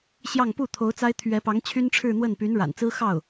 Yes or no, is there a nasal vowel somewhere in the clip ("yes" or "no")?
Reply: no